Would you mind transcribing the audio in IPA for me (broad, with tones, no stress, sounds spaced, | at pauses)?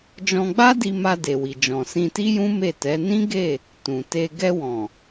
d͡ʒ ɔ̃˧ ɡ͡b a˦ d i˧ m a˧ d e˨ w i˨ d͡ʒ ɔ̃˨ s ĩ˧ t i˦ j ũ˦ m e˦˨ t ɛ˨˦ n ĩ˦ ɡ e˦˨ | t ũ˨ t e˧ ɡ ɛ˧ w ɔ̃˨